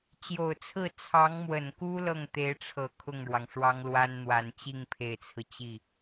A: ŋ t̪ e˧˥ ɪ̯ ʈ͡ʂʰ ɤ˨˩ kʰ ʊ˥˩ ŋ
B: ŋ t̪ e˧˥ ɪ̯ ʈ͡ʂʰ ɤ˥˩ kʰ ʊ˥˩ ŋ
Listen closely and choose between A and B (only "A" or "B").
A